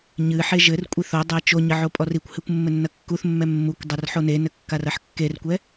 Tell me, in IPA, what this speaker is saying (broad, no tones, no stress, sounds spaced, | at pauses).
ɲ ɨ ħ e ʒ ɘ r kʷʼ i θ o dˤ ɛ t͡ʃ o ɲ ɘ ʕ o pʼ ɔ r i kʷ h ɨ kʷ mː ɘ nː ɐ kː u θ mː ɛ mː u kʷ dˤ ɐ r ħ o n e n ɘ kː a r ɐ ħ kː e r kʷ ɛ